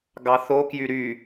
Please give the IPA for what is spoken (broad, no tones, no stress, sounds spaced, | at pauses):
ɡ ɑ θ o k j y ɾ y